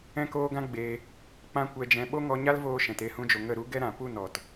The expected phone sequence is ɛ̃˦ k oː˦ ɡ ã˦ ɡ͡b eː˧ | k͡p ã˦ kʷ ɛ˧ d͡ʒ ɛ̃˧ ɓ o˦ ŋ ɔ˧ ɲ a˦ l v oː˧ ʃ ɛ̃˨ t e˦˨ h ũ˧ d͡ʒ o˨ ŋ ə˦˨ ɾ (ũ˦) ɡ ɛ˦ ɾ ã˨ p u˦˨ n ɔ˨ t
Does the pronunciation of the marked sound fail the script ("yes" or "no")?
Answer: yes